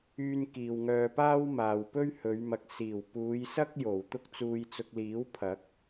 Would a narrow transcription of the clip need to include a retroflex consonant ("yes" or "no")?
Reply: no